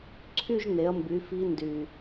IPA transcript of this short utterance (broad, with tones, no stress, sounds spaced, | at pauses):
ǀʰ y˥˧ ʒ n e˩˧ ɐ̯ m b y˩˧ f i˧˥ n d y˨˩